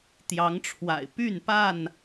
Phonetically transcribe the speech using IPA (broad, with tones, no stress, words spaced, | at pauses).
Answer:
t̪jɑ˨˦ŋʈ͡ʂʰwa̰˨˩ɪ̯ py˥˨npa˥˨n